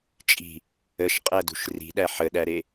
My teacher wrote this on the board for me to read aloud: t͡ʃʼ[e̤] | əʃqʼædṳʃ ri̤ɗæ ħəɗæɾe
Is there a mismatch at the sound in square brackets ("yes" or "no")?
yes